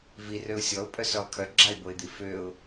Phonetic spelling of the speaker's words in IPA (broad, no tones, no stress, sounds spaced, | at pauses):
v i r ø ʊ̯ sʲ ɔ ʊ̯ pʼ œ s œ lˠ kʰ œ ɡ͡ǁ a ɪ̯ b o ɪ̯ d̪ i f ø ʊ̯